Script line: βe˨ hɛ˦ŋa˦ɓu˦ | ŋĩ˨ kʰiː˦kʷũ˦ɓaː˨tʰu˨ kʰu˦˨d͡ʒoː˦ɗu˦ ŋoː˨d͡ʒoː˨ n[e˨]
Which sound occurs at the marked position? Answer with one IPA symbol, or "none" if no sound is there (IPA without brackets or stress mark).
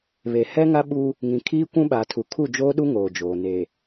e˨